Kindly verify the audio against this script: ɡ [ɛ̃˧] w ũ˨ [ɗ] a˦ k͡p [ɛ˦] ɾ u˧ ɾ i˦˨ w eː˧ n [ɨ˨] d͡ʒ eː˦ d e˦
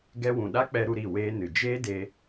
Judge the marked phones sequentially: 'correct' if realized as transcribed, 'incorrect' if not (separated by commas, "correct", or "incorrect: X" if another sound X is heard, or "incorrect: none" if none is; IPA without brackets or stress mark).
incorrect: ɛ˧, correct, incorrect: ɛ˧, correct